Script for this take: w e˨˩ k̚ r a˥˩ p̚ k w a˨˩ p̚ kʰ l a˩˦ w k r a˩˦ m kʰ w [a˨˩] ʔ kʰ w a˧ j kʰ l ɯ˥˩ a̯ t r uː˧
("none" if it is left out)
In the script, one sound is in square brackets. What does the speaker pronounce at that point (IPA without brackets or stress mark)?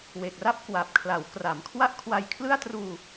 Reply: a˥˩